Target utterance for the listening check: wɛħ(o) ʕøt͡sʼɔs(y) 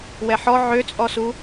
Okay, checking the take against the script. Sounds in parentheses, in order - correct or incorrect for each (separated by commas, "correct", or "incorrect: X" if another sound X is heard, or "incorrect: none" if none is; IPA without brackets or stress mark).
incorrect: ɔ, incorrect: u